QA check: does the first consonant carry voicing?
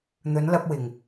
yes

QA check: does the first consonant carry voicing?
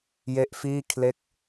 yes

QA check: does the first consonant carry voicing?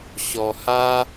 no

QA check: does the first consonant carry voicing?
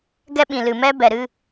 yes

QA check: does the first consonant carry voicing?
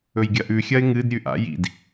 yes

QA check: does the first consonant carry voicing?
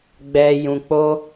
yes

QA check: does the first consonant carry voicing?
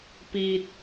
no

